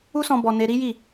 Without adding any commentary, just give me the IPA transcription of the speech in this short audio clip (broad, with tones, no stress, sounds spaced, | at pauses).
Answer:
u˦ s ɔ̃˧ b ɔ˧ n e˧ ɾ i˦ j i˦˨